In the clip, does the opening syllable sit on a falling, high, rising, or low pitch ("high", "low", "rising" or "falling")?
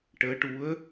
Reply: rising